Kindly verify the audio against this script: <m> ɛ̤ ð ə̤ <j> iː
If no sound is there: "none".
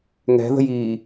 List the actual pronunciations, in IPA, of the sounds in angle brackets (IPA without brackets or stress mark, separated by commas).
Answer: ŋ, j